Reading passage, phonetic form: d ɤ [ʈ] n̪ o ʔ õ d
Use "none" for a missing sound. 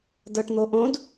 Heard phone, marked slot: ʈ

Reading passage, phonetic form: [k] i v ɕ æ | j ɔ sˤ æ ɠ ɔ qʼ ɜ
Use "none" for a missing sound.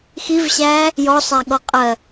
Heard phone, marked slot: x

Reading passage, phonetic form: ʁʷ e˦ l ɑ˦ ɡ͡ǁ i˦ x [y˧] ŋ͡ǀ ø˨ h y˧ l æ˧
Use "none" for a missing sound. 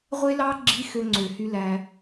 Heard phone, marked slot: ø˧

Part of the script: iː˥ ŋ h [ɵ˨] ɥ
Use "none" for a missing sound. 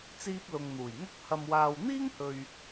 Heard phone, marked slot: ɵ˨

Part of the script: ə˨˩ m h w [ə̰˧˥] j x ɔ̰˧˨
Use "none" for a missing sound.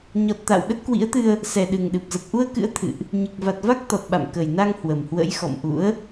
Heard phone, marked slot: ə̰˧˥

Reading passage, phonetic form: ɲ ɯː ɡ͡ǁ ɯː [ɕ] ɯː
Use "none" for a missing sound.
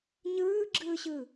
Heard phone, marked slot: ɕ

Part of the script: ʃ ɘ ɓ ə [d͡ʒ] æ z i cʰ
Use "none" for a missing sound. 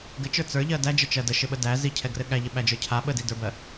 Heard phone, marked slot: d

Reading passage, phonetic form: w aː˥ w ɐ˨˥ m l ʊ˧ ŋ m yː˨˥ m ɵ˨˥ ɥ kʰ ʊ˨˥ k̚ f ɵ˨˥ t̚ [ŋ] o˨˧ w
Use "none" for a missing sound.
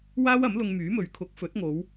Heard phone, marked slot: ŋ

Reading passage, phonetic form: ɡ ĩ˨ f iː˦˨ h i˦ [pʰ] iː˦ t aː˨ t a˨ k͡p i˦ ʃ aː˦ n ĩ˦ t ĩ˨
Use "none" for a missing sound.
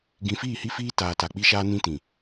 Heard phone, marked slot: f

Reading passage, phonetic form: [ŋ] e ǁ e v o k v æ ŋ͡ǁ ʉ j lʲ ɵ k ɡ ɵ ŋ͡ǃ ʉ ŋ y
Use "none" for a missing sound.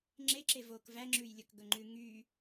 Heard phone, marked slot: ŋ͡ǁ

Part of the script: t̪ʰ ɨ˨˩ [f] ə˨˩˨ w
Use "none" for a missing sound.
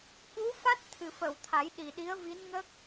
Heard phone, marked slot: f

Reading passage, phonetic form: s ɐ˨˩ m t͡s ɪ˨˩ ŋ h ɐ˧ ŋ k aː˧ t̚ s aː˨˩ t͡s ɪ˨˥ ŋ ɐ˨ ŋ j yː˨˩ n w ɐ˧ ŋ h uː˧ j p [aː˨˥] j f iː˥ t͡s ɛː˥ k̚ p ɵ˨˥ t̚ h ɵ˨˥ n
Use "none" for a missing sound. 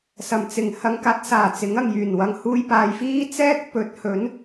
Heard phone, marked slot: aː˨˧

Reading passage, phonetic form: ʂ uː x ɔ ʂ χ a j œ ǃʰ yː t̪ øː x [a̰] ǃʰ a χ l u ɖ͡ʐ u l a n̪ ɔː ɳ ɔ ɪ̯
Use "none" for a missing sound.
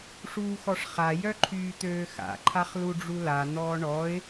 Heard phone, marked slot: a̰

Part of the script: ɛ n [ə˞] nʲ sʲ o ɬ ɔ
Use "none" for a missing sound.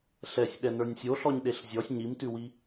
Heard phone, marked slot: ə˞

